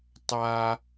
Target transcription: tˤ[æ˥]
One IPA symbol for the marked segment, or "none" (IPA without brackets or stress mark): a˥